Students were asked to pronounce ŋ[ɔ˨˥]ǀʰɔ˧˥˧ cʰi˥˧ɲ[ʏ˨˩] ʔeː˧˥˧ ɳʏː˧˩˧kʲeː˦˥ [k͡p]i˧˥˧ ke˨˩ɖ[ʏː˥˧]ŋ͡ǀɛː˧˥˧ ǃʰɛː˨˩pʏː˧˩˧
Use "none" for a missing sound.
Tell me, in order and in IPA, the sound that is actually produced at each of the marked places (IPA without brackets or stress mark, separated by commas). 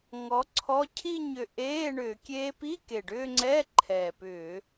ɔ˨˥, ʏ˨˩, p, ʏː˥˧